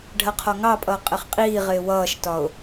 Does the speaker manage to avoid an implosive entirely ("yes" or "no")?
yes